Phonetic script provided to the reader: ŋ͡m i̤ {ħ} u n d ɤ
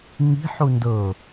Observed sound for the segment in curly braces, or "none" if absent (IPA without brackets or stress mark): ħ